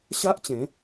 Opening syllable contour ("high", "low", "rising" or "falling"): high